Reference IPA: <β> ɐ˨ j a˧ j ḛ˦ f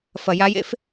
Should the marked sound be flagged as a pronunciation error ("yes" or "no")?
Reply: yes